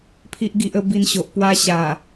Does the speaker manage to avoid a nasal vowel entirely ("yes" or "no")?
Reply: yes